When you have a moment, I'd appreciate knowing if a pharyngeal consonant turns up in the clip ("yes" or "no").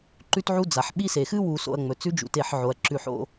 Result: yes